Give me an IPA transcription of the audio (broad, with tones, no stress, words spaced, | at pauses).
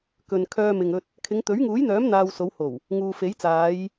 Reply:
kɵ˨nkʰœː˧mɪ˨ŋ ɵ˧t̚ | kʰɪ˨˧ŋt̪ɵ˨˥ɥŋuː˨˥jn̪œː˨˥m n̪aː˧wso˨˧who˨˩w | ŋuː˨fe˨˥jt͡saː˨˧j